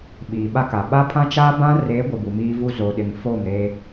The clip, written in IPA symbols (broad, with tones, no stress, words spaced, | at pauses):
ɓiː˨ɓa˦ka˨ ɓa˦pʰã˦ t͡ʃa˦bã˦re˨˦ ɡʷɪ˨bu˨miː˦vu˦ zo˨ɗɪ˨ŋfo˦˨mɾe˦